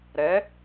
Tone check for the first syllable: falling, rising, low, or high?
rising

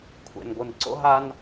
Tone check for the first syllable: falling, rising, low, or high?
low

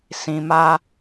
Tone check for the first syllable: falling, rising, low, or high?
low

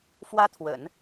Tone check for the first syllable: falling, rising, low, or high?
high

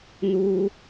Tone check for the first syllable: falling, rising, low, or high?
low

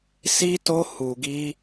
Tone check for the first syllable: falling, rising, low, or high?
high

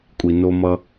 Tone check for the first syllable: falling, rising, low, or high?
low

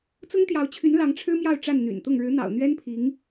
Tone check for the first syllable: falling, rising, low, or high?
high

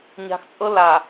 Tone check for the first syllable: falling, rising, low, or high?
low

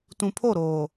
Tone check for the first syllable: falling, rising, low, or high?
low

